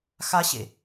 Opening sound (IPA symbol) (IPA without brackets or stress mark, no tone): x